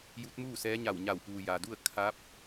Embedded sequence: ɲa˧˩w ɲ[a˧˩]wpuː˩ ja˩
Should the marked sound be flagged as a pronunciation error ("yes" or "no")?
no